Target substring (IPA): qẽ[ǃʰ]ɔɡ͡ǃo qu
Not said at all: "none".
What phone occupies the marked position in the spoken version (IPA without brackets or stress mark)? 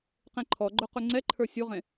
ǃʰ